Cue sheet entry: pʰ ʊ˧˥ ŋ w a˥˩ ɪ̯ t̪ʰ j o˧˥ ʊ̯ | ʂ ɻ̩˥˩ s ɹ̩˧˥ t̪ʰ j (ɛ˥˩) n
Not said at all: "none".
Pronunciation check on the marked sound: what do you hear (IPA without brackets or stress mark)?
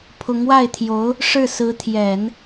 ɛ˨˩˦